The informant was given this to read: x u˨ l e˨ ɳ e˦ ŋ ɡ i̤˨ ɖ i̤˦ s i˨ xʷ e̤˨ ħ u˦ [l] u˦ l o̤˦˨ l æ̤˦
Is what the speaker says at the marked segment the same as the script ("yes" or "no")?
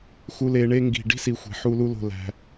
yes